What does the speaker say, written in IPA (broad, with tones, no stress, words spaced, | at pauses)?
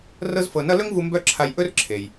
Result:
rɤ˥zfɤ˧nʌ˥ lɵ˥ŋvu˧ mbœ˥ǁʰa˧j ʔɵ˥rǁʰe˩j